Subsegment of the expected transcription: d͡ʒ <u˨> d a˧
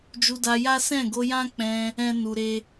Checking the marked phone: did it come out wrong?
yes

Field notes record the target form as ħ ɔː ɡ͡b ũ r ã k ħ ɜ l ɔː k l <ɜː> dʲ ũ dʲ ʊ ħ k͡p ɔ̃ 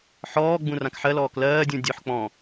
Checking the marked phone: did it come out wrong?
no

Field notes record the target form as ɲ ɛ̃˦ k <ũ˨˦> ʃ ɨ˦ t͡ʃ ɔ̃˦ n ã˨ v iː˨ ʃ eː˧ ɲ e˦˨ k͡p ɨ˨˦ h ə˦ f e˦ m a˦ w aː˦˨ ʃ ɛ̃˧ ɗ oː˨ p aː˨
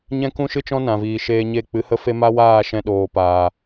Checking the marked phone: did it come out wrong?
yes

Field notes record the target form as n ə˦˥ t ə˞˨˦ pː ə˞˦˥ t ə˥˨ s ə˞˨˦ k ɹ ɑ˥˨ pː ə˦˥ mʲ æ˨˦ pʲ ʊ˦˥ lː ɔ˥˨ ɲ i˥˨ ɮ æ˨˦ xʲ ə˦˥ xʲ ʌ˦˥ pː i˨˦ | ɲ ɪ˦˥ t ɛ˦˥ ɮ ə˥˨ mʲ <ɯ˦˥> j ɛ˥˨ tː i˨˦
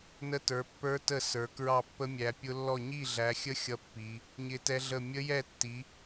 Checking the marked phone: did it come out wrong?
yes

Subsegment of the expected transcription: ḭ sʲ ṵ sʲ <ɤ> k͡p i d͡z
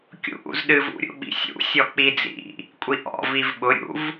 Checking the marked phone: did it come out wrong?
yes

